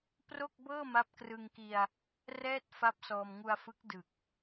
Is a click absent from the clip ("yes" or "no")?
yes